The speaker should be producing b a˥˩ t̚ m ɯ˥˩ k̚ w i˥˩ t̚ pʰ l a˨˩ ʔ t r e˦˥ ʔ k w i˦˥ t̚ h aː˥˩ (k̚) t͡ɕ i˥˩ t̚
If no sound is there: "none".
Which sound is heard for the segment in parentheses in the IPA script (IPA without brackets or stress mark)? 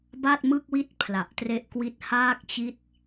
k̚